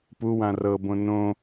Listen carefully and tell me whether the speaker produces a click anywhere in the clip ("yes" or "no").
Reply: no